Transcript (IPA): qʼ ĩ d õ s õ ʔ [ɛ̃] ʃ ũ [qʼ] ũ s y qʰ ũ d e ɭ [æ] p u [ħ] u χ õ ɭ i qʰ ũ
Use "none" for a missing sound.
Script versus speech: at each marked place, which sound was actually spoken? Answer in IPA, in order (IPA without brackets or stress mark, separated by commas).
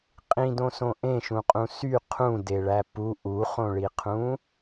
ẽ, qʼ, æ, ʔ